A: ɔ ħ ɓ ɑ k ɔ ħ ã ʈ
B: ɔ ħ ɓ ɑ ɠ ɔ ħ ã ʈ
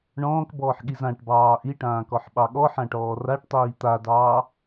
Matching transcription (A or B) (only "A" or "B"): B